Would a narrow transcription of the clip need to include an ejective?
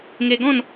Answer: no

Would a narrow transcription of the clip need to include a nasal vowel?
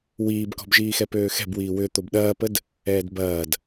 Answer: no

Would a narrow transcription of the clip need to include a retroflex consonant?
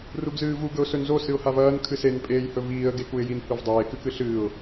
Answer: no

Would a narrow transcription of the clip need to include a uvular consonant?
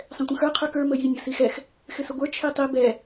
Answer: yes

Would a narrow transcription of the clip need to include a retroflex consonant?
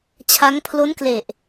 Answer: no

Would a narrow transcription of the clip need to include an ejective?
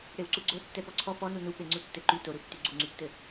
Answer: no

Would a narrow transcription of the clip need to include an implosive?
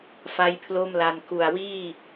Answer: no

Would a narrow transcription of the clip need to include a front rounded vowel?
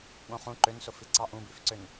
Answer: yes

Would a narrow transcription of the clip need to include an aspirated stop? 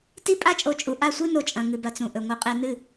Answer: no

